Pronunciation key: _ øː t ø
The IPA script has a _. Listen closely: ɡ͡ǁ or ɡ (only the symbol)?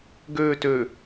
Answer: ɡ